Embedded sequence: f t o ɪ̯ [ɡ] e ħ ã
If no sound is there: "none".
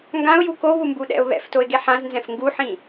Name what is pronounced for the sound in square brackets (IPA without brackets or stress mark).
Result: ɡ